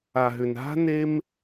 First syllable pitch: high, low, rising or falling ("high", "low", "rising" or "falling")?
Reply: low